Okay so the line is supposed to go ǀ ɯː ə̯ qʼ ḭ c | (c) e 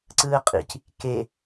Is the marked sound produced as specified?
no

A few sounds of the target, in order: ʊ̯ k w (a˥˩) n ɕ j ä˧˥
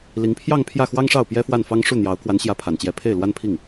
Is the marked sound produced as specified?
no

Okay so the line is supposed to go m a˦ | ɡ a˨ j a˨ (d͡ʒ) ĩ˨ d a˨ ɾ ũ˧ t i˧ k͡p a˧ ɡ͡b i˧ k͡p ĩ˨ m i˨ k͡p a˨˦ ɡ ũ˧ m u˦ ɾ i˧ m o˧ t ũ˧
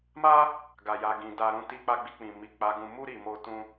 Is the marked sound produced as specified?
no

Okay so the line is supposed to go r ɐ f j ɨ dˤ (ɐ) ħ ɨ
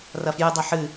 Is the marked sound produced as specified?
yes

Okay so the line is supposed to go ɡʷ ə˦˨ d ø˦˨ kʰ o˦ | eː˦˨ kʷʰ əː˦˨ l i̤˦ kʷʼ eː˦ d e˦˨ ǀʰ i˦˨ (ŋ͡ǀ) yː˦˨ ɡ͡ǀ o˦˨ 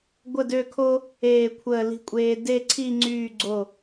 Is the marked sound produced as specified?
yes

